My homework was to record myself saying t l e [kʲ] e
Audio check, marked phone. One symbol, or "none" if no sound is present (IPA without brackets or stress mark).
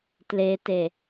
t